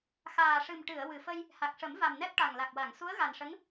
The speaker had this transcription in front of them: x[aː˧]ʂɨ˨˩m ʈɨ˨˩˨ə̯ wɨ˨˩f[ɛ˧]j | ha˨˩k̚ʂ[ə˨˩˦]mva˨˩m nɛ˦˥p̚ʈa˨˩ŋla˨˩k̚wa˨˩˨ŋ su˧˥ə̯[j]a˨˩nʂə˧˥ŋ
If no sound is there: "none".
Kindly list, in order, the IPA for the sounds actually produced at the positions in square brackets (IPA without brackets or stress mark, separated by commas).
aː˨˩, ə˧, ə˨˩˦, ɣ